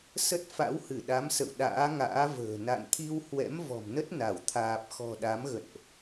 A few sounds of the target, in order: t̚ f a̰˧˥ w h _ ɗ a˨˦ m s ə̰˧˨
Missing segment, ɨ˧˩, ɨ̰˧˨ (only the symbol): ɨ˧˩